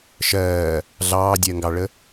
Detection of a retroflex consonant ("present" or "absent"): present